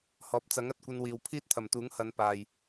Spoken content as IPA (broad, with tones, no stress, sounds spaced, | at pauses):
h ɔː˨ p̚ t͡s ɐ˨˥ ŋ ɐ˨ t̚ kʷ ɐ˧ n w iː˨ w pʰ iː˥ t̚ t̪ʰ ɐ˨˩ m t̪ uː˨˥ ŋ h ɐ˨˧ n p aː˨ j